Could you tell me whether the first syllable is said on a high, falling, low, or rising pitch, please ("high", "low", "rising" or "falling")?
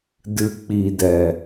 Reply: low